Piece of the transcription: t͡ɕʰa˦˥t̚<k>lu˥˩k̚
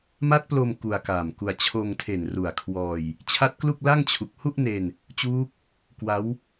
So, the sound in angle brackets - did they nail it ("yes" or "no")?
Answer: yes